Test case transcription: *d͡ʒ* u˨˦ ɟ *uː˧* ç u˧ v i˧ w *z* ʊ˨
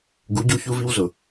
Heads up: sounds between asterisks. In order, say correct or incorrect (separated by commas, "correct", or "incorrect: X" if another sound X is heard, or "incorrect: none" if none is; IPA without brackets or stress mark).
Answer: incorrect: ɡ, incorrect: u˧, correct